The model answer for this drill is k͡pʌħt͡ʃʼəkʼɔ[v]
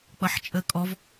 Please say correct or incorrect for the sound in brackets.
correct